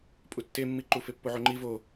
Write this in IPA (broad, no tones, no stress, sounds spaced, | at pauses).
pʼ u tː e mː i ǃ u f e pː o ʕ o ŋ͡ǃ i v o